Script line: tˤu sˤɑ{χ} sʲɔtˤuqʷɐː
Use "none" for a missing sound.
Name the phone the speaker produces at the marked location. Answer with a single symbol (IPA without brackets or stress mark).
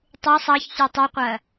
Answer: ç